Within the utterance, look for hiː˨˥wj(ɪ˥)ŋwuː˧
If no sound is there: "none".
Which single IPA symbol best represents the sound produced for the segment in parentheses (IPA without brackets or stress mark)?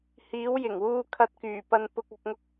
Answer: ɪ˨˩